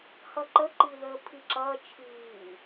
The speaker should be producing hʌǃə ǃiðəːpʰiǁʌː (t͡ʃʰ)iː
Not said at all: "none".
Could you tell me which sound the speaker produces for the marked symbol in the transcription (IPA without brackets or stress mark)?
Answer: t͡ʃʰ